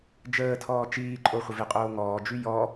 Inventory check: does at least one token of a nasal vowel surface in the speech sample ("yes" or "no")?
no